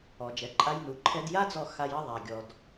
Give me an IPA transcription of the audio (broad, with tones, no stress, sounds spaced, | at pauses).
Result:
ɔ˨ d͡ʒ ɛ˨ ǃʼ a˧ j n u˨ ǃʰ ɛ˧ d j a˦ d͡z ɔ˧ x a˧ j ɐ˦ ðˤ a˨ ɡʲ ɔ˨ d